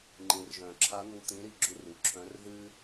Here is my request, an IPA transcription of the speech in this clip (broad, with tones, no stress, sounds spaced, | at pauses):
ŋ͡ǃ ĩ˩ r ʒ œ̃˩ ǁʰ a˧˥ n̪ u˧ t̪ ĩ˧˥ ɾ i˧ ɡ͡ǁ u˧˥ r u˩˧ ǁʰ œ̃˧˥ r ð ɨ˥